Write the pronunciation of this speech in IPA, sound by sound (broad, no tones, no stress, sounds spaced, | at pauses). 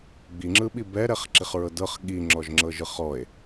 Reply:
ɡ͡b i ŋ͡ǁ ɯ ɓ i b ɛ ɾ ɛ χ ǁ i χ ɹ ɤ d ɤ χ ɠ i ŋ͡ǁ ɔ ʒ ŋ͡ǁ ɤ ʒ ɯ χ ɔ e̯